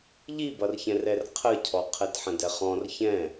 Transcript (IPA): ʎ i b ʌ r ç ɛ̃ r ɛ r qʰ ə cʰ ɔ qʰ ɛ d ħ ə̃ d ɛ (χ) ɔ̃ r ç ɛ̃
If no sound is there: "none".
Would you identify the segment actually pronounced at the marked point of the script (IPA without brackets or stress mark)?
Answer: χ